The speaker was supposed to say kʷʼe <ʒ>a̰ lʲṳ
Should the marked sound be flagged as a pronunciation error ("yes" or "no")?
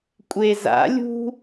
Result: yes